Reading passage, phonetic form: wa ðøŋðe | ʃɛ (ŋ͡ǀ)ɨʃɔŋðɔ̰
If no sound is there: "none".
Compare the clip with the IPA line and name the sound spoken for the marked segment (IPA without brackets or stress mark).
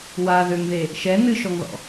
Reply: n